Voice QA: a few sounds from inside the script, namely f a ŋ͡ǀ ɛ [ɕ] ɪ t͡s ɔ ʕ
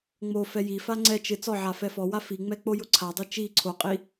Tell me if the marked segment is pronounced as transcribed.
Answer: no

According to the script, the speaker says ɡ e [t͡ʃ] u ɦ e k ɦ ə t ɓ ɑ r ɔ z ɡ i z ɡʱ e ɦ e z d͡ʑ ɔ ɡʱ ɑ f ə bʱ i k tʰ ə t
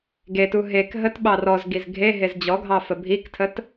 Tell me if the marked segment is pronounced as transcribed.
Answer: no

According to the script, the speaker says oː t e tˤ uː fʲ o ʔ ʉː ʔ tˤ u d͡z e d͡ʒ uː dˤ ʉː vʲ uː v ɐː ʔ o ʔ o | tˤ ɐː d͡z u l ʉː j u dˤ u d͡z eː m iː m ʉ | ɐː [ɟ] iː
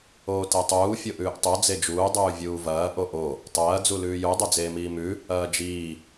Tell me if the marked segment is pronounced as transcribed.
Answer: no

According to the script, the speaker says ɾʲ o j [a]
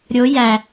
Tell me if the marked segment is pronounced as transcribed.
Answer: no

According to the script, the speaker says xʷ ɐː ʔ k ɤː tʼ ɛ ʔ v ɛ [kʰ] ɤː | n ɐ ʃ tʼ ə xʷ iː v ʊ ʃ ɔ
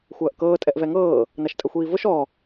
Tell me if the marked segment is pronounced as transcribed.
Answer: no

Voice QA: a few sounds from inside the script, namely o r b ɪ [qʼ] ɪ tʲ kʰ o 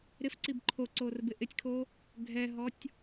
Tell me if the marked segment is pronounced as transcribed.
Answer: no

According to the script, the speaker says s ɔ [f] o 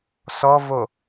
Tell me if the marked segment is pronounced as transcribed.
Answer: no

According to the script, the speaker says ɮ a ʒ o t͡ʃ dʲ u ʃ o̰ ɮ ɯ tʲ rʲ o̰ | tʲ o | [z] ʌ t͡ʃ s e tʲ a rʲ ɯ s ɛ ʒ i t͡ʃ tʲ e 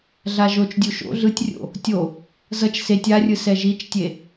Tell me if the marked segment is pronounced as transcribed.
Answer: yes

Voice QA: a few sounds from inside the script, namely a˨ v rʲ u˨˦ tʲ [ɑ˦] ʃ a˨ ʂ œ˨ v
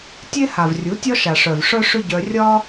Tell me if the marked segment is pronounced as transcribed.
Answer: no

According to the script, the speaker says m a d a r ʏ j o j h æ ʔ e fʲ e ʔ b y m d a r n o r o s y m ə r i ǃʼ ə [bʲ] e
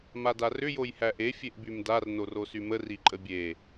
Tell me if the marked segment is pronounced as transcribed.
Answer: yes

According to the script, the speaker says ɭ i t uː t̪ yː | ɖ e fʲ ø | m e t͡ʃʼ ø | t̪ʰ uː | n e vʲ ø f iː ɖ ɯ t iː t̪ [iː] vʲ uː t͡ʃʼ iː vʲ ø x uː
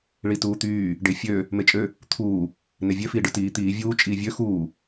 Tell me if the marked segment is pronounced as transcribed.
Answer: yes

